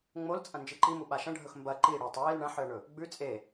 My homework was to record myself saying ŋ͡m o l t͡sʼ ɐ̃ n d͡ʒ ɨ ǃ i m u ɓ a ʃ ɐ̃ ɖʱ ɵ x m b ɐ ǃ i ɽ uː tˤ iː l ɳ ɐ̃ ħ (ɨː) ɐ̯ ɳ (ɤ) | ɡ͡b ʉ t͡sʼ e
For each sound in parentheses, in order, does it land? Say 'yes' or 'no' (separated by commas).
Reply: no, no